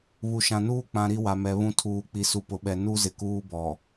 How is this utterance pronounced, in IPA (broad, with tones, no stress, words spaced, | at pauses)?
βu˨ʃã˨nuː˦k͡pã˨ ɾi˦wa˨mɛ˨ βũ˦ tʰuː˨ k͡pi˨su˨pʊ˨ɓɛ˨ nu˦ zɪ˨kuː˦bɔ˨